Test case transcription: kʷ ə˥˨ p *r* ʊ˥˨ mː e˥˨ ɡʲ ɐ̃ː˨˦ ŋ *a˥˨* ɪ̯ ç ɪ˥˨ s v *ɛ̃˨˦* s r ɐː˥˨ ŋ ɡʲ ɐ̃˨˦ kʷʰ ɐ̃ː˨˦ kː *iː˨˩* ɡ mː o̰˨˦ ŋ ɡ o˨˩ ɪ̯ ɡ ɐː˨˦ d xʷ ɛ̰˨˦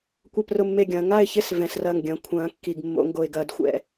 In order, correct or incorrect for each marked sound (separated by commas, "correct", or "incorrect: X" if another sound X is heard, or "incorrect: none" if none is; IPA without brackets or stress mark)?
correct, correct, correct, incorrect: i˨˩